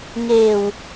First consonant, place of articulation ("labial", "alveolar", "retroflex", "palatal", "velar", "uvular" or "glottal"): velar